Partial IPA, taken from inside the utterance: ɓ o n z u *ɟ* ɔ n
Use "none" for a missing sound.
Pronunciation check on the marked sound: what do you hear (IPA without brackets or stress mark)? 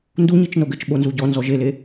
ɟ